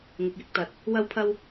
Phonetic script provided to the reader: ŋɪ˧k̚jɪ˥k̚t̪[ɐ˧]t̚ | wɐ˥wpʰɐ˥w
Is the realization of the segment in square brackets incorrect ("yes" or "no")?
no